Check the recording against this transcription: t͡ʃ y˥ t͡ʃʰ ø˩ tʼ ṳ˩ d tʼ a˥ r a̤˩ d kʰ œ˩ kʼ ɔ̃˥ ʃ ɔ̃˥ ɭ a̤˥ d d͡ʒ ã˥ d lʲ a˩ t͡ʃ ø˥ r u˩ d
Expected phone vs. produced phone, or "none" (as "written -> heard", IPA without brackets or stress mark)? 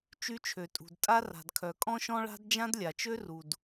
none